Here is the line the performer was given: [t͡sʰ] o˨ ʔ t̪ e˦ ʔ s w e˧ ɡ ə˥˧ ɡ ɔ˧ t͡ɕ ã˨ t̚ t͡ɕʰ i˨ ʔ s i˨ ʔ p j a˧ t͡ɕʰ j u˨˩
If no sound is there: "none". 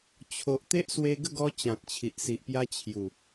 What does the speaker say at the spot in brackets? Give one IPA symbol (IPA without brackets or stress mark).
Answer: t͡ɕʰ